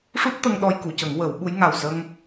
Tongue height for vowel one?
high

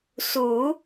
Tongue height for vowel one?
high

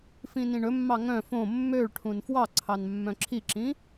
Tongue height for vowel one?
high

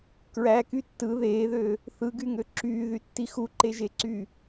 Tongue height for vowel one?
low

